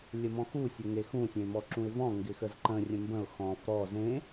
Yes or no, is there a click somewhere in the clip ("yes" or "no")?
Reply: yes